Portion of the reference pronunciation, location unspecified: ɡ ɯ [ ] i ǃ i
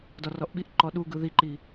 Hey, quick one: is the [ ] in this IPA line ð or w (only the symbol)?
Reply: ð